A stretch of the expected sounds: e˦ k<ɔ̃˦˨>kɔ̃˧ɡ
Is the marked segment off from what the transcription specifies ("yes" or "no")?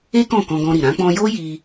no